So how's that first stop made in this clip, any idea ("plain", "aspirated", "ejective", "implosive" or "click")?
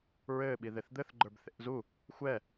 implosive